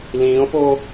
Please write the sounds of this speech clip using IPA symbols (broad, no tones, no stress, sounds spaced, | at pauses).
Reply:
l ĩː o̯ p o